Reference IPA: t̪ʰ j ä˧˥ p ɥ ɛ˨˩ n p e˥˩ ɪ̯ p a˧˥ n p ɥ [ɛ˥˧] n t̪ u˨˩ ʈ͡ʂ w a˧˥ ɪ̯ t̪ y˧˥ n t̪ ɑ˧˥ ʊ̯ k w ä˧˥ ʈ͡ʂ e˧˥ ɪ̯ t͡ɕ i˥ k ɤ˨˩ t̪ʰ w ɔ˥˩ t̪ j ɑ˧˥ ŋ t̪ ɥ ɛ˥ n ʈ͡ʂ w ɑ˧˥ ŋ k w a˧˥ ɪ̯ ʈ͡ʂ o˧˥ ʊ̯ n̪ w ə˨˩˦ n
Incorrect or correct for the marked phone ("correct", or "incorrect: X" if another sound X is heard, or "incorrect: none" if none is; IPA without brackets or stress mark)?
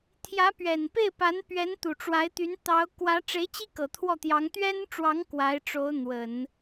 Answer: incorrect: ɛ˧˥